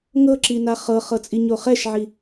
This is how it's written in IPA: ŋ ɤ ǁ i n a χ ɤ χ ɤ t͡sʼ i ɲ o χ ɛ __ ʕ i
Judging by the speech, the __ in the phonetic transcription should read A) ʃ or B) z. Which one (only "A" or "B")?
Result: A